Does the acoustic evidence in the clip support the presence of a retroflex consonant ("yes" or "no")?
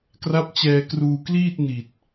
no